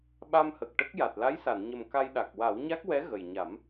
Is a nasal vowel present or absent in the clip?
absent